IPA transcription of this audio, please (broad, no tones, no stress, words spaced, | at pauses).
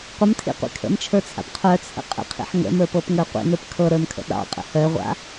qʷəmtʰḭqʷḭ kʰə̰mt͡ʃʰə˞t͡sʰa̰p qʰœt͡sʰə̰ qʼə̰qʰḭħ ŋə̰mə˞pɤpŋə˞ qʷḭnə˞p kʰɤɾə˞mkʰə̰ ɗɑ̰qʼə̰ hœʁʷa̰